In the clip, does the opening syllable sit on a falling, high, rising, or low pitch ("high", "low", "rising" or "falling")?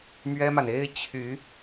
high